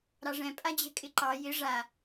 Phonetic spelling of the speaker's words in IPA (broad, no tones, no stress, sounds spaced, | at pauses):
ɾ ɑ ʐ ɛ̃ pʼ a d͡ʑ ɛ̤ kʼ ɪ ǃ ɑ j ɪ ʐ a